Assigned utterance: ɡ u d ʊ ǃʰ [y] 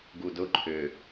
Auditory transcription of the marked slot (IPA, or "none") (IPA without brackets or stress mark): ʏ